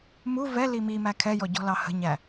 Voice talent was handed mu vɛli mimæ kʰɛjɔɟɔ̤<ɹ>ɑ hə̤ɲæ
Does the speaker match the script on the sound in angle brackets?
no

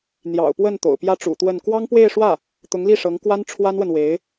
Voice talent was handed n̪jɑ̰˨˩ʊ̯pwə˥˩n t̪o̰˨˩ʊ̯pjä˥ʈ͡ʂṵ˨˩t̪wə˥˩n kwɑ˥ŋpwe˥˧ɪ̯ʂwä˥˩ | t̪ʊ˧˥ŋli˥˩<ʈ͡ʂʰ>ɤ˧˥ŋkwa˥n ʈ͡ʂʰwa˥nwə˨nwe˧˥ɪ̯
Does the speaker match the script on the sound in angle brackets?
no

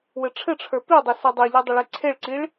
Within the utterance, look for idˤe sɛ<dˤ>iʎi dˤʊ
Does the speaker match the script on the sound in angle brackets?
yes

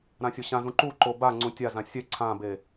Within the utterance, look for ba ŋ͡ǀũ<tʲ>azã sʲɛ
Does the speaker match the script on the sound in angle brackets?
yes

